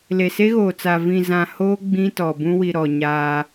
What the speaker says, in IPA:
l e˨ s e˦ ɣ oː˨ t͡s a˨ v ĩ˨ z ã˨ h oː˦ ɡ͡b ĩ˦ t ɔ˨ b ũ˦ w i˨ ɾ ɔ˨ ɲ aː˦

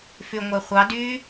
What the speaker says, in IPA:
f y ŋʷ ɛ χʷ ɑ d y

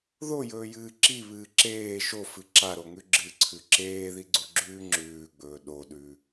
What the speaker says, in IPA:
ð o j ɵː j ɨː ǁ i β ɨː ǁ eː ʃ o f ɨ ǁ a ɾ o ŋ ʉ ɡ͡ǁ ɨ ǀʰ ʉ ǁ eː ð i ɡ͡ǀ u ɡ͡ǁ ʉː ŋ͡ǁ ʉː ɡ͡b ɵː ɗ o ɗ ʉ

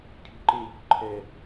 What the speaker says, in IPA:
cʰ ṳ ǃ e ʎ o̤ ǃʰ ɛ

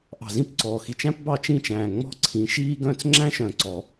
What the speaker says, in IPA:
ʔ ɑ̤˨˩ z ĩ˥˩ p ǀ ɔː˨˩ x i˨˩ t͡ʃ æ̃˥ p b ɑ˥˩ t͡ʃ ĩː˥˩ t͡ʃ æ̃ː˨˩ ŋ͡m ɔ̤˥˩ ǀʰ ĩ˨˦ ʃ iː˥ ɡ œ̃˥˩ t͡s ŋ͡ǁ æ̃˥ ʃ œ̃˨˩ ǀ ɔ˨˩˦

